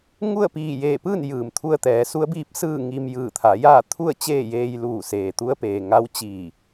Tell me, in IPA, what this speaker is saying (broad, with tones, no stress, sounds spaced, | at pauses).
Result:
ŋ u˥˨ ə̯ p iː˧˩ j eː˧˩ p ɯː˥˨ n j ɯː˩ m t̪ʰ u˧ ə̯ t̪ ɛː˩˧ s u˧˥ ə̯ b iː˧˥ p̚ s ɯː˥˨ ŋ i˧ m j ɯː˧˩ t̪ʰ a˩˧ j aː˥˨ t̪ʰ u˥˨ ə̯ t͡ɕ eː˥˨ j eː˧ j l uː˧˩ s eː˩ t̪ u˧˥ ə̯ p eː˩ ŋ a˧˥ w t͡ɕ iː˧˩